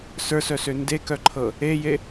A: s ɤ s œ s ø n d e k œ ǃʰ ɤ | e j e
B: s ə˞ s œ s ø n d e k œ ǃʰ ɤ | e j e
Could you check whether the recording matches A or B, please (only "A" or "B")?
B